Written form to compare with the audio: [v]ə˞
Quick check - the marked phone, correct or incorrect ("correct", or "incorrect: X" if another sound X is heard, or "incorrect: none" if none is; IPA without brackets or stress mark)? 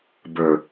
incorrect: b